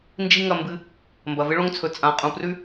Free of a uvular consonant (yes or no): no